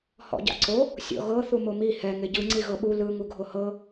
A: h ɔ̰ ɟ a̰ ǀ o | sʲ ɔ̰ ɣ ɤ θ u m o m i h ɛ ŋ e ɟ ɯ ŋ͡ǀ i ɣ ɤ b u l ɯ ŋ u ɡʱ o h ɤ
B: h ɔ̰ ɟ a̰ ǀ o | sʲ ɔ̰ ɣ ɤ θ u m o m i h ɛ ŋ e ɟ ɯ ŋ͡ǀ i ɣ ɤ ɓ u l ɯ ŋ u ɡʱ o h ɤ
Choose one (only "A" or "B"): B